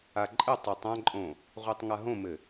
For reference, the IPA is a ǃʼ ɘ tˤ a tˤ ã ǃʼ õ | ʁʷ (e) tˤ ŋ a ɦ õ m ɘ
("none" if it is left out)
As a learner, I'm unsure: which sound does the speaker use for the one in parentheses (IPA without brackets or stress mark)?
i